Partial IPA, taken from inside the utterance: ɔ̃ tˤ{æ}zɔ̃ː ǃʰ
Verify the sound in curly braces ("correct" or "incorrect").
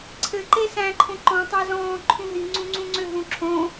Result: correct